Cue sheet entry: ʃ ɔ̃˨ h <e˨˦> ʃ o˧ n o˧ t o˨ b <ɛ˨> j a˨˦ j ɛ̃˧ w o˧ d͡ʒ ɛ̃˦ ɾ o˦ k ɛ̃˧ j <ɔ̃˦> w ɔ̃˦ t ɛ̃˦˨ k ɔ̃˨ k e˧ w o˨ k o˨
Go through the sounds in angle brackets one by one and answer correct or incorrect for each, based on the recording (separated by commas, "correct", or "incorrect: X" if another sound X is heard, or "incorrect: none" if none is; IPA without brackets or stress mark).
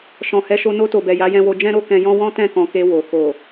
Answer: incorrect: ɛ˨˦, correct, correct